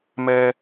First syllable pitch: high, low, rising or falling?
high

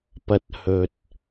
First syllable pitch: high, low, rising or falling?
rising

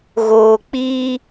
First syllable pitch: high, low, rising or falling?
low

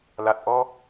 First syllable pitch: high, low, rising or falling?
low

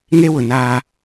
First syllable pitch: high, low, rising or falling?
high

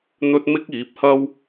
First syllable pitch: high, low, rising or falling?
high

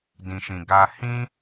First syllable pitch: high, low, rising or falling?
low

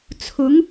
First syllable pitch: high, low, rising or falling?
rising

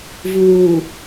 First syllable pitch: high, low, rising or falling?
low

